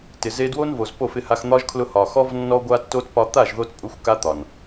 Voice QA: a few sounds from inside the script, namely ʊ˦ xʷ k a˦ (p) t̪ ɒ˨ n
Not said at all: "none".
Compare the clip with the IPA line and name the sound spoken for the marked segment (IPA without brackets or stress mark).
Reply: none